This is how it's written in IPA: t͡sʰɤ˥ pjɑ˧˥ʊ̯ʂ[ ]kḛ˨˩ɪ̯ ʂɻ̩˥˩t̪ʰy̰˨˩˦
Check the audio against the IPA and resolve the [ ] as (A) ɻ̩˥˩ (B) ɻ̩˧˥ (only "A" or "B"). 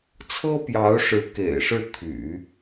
B